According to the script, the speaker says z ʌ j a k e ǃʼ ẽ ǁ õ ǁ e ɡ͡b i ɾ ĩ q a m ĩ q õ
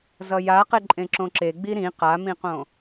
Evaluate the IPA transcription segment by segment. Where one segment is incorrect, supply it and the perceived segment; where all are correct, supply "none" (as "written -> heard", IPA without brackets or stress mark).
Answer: k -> q